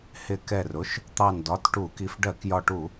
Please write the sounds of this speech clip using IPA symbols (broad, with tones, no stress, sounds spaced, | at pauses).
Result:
h ɪ˧˩ k ɛ˧˩ r ʊ˩˧˩ ʃ | t̪ ɑ˧˩ n d ɒ˩˧˩ t ʈ u˧˩˧ k i˧˩ f ɖ ɜ˧˩˧ k j ɒ˧˩ ʈ u˧˩˧